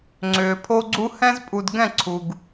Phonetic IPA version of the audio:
ŋ͡ǀʏː˨pʰo˦ɡ͡ǀu˦ hɛ̃˦zpʼu˨d ɡɛ̃˦˨ǀʰu˨ɡ

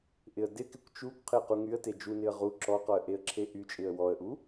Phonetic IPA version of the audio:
ʔɪə̯dɪkɪkʷ t͡ʃukʷ qʰɪə̯quŋyə̯te d͡ʒunɪə̯ ʁu ǁɔqɔə̯ ʔeə̯ǁʰeʔyt͡ʃʼɪə̯ wɔə̯ʔu

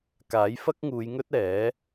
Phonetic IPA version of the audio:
kaː˨˥jfɐ˥k̚ŋuː˨˧jŋɵ˥t̚ ɛː˨˥

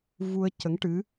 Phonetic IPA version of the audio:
vu˧ə̯ cə˧˥ŋʈɨ˧˥

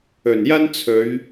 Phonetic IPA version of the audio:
ɵ˨˩njɐ˥nt͡sʰɵ˨˧ɥ

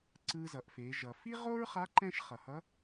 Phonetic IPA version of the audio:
ǀɯ˧zʌ˩˧ʔfe˩˧ ʒʌ˩ fi˥ ʁo˥ɹχa˧˥ ǃɛ̃˥ʃ χʌ˩hʌ˧˥

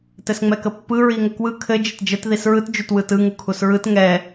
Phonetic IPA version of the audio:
tɘsŋ͡mɛkəpːɯ ɹiŋəkwɯ kʰɘ d͡ʒɘtd͡ʒət ðisɹɯt d͡ʒutwɯtɯ ŋukʰusɹɯt ŋɛ

